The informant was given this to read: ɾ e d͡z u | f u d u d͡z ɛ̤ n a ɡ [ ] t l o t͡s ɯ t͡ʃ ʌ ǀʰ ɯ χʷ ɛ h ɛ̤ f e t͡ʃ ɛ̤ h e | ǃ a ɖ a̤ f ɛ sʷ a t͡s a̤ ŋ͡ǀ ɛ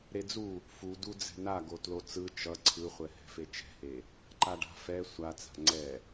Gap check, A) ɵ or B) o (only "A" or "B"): B